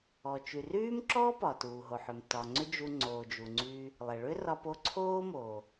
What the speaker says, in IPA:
ɔ˩ t͡ʃ y˩ r yː˥ m ǁ ɔː˥ p ɒ˩ t uː˩ ɦ o˩ ħ ʏ˩ m t ɒ˩ ŋ͡ǀ ʏ˥ d͡ʒ u˧ ŋ͡ǀ oː˩ d͡ʒ u˩ ŋ͡ǀ yː˧ | lˠ ɛ˩ ɭ ʏ˥ r ɒ˧ p o˧ ǀʰ oː˥ m oː˩

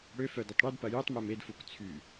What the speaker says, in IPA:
ɽ ø f œ d ɐ tˤ ɽ y d p ɐ j u tˤ m ɛ m e d f u k t͡sʰ y

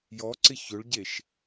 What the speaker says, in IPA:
j ɔ ǀ ɪ ç ɵ ɭ ɟ e ʃ

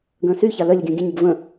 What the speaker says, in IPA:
ɡ ə̃ː s y ç a l œ lʲ ʊ ɡʲ ə̃ː ɡʲ ə̃ ɲ ɪ ɡ v ə̃

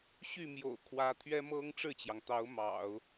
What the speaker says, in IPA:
ɕ y˥˩ m j o̰˨˩ ʊ̯ kʰ w ä˧˥ t̪ʰ ɥ ɛ˥ m ɤ˥ ŋ ʈ͡ʂ ɻ̩˥˩ t͡ɕ j ɑ˩ ŋ t̪ ɑ˧˥ ʊ̯ m ɑ̰˨˩˦ ʊ̯

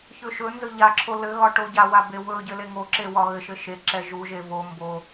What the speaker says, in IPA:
ç ɵ ʃ ɵ n z ɵ ʎ a ǁʰ o l ɘ ɣ ɒ ʈ o ɟ a w a b e w ɵ ɟ ɘ l e ŋ o ǁ e w ɒ ɣ ɘ ʃ ɘ ʃ e ǁ ɛ ʒ u ʒ e v o m b o

